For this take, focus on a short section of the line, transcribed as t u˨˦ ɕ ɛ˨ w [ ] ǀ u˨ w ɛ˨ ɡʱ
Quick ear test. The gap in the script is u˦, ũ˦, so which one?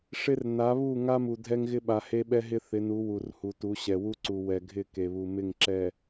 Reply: u˦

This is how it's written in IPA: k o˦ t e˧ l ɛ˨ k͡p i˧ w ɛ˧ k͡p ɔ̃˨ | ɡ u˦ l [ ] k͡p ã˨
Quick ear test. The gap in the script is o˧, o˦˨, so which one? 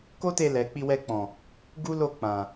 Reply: o˦˨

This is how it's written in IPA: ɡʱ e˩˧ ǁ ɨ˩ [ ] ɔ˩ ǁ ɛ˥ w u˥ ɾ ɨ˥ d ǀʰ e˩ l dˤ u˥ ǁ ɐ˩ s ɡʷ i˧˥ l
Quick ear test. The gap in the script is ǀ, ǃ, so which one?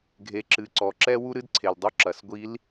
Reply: ǀ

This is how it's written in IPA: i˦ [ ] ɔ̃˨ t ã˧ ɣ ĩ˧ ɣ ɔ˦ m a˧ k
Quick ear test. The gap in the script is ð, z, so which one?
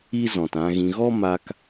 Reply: z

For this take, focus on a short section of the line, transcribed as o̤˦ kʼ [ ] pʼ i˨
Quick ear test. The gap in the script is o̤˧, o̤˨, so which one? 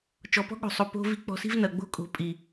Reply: o̤˨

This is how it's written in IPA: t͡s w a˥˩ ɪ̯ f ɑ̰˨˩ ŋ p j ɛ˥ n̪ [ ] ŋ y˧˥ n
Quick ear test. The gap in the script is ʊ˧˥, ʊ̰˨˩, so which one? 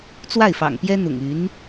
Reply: ʊ̰˨˩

